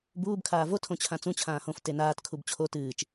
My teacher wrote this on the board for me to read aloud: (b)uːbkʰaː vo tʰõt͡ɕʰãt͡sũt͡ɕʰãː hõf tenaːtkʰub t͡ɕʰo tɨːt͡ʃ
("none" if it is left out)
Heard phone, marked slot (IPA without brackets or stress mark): b